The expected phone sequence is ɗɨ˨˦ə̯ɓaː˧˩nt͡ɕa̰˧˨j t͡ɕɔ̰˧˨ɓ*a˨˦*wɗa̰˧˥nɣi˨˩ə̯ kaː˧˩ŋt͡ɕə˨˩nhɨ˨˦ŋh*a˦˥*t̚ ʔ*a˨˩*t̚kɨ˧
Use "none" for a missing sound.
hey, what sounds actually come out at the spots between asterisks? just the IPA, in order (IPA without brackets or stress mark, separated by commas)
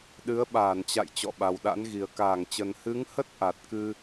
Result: a˨˩, ə˦˥, a˨˩